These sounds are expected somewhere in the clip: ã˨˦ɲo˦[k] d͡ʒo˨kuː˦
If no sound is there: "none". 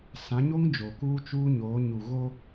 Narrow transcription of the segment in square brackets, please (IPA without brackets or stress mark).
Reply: ŋ